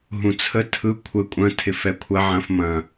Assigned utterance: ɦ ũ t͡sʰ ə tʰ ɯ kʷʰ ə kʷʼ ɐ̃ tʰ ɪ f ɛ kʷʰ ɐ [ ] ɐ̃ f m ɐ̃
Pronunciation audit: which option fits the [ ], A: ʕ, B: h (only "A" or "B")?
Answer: A